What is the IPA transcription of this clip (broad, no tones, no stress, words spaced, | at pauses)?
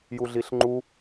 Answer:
juɮiɬŋ͡ǃu